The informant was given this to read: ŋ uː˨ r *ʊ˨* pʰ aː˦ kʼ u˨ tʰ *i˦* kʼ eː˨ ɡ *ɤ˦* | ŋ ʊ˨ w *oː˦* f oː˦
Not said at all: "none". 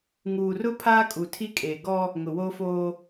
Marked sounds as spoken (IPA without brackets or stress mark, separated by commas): ʊ˦, i˦, ɔ˦, oː˦